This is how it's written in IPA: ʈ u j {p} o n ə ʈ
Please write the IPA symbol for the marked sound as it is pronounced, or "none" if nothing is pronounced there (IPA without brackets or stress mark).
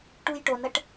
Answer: ʈ